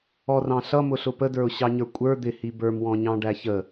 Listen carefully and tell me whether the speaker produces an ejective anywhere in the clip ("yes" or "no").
yes